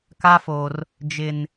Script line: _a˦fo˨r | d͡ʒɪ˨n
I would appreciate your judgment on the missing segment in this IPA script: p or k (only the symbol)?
k